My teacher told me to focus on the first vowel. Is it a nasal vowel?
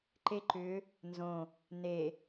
no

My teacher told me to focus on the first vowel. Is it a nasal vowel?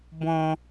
yes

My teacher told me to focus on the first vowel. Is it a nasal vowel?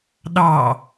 no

